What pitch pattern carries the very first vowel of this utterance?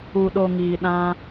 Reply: low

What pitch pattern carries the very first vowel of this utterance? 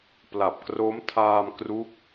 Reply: low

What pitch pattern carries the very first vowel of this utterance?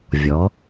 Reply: rising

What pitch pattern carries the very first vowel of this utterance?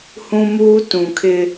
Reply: high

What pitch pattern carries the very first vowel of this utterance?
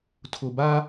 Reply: low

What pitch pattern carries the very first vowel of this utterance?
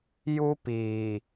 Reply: high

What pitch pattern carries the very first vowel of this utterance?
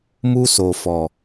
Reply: high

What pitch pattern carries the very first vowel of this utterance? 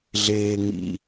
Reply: low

